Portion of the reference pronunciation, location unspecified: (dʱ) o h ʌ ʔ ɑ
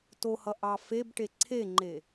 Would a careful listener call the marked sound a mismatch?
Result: yes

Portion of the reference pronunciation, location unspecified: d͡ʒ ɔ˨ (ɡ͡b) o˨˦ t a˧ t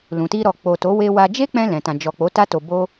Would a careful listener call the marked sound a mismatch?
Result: yes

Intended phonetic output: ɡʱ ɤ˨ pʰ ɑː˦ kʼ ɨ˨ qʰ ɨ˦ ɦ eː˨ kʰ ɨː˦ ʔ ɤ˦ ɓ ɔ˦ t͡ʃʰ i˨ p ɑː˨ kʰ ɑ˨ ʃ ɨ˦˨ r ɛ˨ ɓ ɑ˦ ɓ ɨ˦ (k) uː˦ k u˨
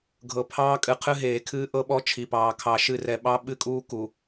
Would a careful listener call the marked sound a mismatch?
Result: yes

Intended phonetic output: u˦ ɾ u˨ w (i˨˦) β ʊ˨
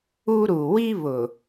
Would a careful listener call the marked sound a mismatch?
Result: yes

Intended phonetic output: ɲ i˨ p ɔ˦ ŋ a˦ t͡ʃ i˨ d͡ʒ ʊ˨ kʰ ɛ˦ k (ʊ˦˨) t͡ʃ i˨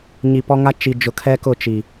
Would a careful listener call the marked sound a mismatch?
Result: no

